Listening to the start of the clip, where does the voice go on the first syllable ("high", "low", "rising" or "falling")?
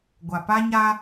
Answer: low